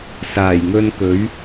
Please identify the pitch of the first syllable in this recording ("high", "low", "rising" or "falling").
low